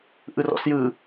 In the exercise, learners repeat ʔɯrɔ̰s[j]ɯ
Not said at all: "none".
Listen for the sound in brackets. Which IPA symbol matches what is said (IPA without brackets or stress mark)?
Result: j